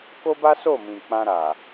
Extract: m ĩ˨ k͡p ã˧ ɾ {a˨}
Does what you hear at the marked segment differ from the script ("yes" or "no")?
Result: no